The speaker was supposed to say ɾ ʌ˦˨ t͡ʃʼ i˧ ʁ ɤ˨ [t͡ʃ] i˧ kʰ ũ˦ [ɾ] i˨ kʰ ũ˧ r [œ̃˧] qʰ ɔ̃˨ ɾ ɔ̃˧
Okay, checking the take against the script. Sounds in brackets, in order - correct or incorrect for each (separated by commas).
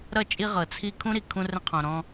incorrect, correct, incorrect